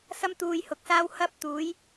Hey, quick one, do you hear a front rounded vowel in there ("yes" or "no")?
no